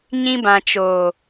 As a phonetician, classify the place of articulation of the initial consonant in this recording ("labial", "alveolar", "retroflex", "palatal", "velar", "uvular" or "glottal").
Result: palatal